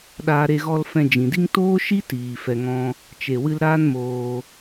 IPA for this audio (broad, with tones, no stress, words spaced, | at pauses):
ɗaː˧ɾe˧ ɣɔ˧lfɛ̃˧d͡ʒĩ˨di˦ŋ toː˦ʃi˦ tiː˨ fɛ˧ŋɔ̃˦ | t͡ʃe˨wɨ˧l ɾaː˦n moː˧